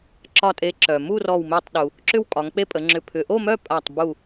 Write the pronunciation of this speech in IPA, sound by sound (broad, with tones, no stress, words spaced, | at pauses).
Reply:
ǁɒ˧˩tʼe˨˦ǁœ˩ mu˥˨ rɔ˧˩wme˧˩tˤ ɗu˩ | ǁʏ˥˨wkʼɒ˨˦ŋk͡pe˥˨pʼə˨˦ ŋ͡ǁʏ˧˩pʰʏ˨˦ ʔo˥˨mœ˥˨ pʼa˧˩tˤbu˧˩